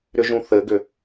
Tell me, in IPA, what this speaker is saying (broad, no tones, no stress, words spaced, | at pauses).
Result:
ɾʏʒũθɘɡʏ